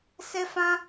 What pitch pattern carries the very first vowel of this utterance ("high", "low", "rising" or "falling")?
high